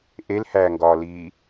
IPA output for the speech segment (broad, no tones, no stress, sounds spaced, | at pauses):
ʔ e l h æː ŋ ɡ ɒː l iː